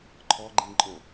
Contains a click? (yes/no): yes